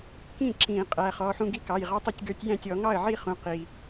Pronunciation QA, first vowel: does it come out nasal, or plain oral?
nasal